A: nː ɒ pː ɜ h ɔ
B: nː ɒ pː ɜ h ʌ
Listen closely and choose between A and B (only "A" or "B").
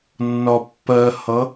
B